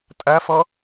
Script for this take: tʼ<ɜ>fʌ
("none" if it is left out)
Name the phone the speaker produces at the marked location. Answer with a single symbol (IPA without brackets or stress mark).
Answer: æ